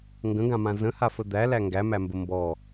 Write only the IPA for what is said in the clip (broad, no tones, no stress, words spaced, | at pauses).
ŋɡə̃ɡãmã zə̃hafə d̪ælæ ŋɡæmæmbə mbɔ